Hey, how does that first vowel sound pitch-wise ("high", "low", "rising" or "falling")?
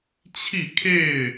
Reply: falling